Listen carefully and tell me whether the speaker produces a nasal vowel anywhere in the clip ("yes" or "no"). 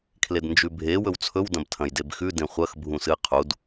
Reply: yes